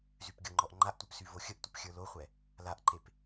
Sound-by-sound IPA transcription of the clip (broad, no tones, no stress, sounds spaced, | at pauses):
z y p ɡʲ ɤ ŋ͡ǃ ɔ ʔ ŋ͡ǃ a ʔ tʷ ə˞ p s y v o xʲ ə ʔ tʷ ə p xʲ ə˞ l o χʷ ɛ | l a ʔ ǃ e p